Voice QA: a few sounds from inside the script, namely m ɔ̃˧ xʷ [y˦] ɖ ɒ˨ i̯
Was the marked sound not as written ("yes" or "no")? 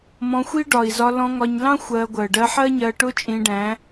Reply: yes